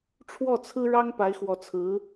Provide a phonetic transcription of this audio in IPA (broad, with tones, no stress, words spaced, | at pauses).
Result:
ʈ͡ʂʰwɔ˥˩ t͡sʰɹ̩˥ɻɑ˥ŋ pa˧˥ɪ̯xwɔ˧˥t͡sʰɹ̩˧˥